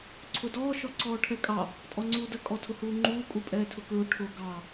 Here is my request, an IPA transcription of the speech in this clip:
ǀʰ ʊ d ɔː ʃ ɔ ǀ ɔː ʈʰ ɛ kʼ ɑ | tʼ ɔ ŋ͡ǀ uː d ə kʼ ɔ tʰ ʊ h uː ŋ͡ǃ uː kʼ u pʼ ɛː tʰ ʊ k ɹ ʊ ʈʰ ʊ ɡ ɑ

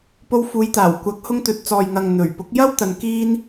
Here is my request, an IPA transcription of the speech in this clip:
p o˧ w f uː˨˧ j t̪ aː˨˩ w kʷ ɐ˨˥ k̚ h ʊ˧ ŋ t̪ ɵ˨ t̚ t͡s ɔː˨ j ŋ ɐ˨ ŋ n̪ ɵ˨˩ ɥ p ʊ˨˥ k̚ j ɐ˥ w t̪ ɐ˨ n k iː˧ n

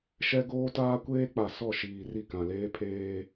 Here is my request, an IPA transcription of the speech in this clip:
ʃ ɛ˦ ɡ oː˦ t aː˦ kʷ eː˦ k͡p a˨ s ɔ˦˨ ʃ iː˨ r i˦˨ k ã˨ l eː˦ pʰ eː˦

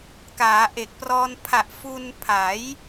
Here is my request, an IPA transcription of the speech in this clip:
k aː˩˦ ʔ e˨˩ k̚ p r ɔː˧ n pʰ a˨˩ ʔ f u˧ n pʰ a˩˦ j

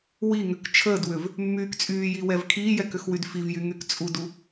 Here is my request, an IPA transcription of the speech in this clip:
w i ŋ ʏ k t͡ʃʰ əː d w ʏ v | mː yː k t͡sʼ yː j i w ɛ v kʰ iː j ɛ k ʏ x w y d f i v j y ŋ y k t͡sʼ u d u

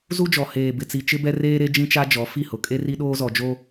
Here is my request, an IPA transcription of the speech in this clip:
z u˦ d͡ʒ ɔ˨ h eː˨ b ɪ˨ t͡s i˨ t͡ʃ ɪ˦ b ɛ˦ r eː˦ ɾ e˦ d͡ʒ ĩ˦ t͡ʃ a˦ d͡ʒ ɔ˨˦ f i˦˨ h ʊ˨ kʼ e˦ r i˦ ɗ oː˦ z ɔ˨ d͡ʒ o˦

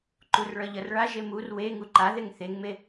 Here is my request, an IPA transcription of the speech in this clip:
ǃ u r ɭ ʌ ʎ ʌ r ɭ a ʒ e m u r w e ŋ u ǃ a ð e ŋ θ e ŋ m e

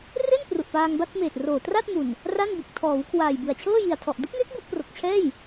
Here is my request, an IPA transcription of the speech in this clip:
r e˥˩ n p r u˨˩ ʔ p aː˧ ŋ b a˥˩ t̚ m eː˨˩ t̚ r oː˨˩ t r a˥˩ t̚ m u˨˩ n | r a˥˩ n b ɯ˨˩ k̚ tʰ ɔː˩˦ w kʰ w aː˨˩ j b ɯ˨˩ a̯ t͡ɕʰ ɤː˥˩ j i˨˩ a̯ tʰ ɔ˨˩ ʔ d u˦˥ k̚ ŋ e˦˥ k̚ b u˥˩ ʔ p r o˨˩ k̚ t͡ɕʰ ɛː˥˩ j

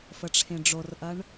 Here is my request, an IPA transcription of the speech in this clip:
f ə ʈ͡ʂʰ ẽ ɖ͡ʐ o r ʔ ɐ ɳ

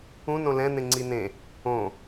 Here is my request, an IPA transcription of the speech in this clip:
ũ n õ l ɛ̃ n̪ ẽ ŋ͡ǀ i n ẽ | õ

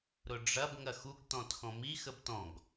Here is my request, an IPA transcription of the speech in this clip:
ɾ ʊ ɖ͡ʐ ɐ b ŋ ɐ x u ɡ t ɔ̃ t x ɔ̃ m i x ə b t ɔ̃ ɡ

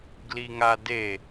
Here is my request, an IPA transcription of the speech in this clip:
ɡ l i ŋ a d e

